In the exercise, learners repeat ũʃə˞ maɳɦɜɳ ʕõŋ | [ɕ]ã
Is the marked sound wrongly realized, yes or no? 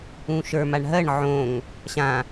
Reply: no